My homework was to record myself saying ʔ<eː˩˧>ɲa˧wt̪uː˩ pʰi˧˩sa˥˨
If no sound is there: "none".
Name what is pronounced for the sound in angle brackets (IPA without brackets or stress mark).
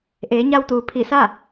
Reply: eː˩˧